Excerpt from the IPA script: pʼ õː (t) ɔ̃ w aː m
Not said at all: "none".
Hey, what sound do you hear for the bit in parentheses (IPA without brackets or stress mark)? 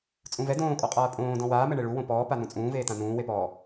d